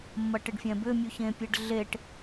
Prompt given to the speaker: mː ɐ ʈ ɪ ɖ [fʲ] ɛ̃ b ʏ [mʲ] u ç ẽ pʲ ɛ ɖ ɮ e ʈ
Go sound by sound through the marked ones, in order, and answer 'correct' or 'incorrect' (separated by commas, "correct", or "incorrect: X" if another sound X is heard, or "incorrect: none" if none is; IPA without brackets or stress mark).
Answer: correct, correct